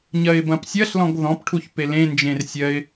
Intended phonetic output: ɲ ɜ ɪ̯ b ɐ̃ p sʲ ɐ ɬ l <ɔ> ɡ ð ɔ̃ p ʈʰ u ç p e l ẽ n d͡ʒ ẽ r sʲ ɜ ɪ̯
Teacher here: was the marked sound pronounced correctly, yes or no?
no